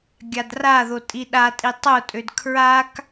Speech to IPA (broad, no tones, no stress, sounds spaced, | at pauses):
ɡʲ a d r a ð o tʼ i ɗ a tʼ i tˤ o tʼ ø d kʰ ɹ a k